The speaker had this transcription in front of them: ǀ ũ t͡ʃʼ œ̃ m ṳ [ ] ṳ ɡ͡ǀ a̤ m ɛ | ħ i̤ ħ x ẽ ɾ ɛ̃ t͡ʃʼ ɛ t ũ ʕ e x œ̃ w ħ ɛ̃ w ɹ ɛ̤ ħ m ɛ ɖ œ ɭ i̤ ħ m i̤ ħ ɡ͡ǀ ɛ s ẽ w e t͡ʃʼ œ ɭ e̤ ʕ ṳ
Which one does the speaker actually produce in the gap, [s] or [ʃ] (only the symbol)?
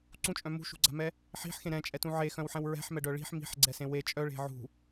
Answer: ʃ